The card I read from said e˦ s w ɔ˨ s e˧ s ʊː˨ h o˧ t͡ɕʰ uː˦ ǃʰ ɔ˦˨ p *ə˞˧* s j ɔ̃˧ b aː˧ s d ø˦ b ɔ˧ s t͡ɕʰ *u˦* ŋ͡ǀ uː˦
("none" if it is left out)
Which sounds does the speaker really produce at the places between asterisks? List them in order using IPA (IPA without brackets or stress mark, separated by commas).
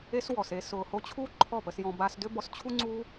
ə˧, u˦